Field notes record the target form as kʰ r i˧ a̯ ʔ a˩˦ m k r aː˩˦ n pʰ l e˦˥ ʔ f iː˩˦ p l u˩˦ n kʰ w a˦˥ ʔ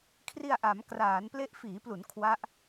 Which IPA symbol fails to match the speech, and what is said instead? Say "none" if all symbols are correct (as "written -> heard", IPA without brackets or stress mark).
pʰ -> p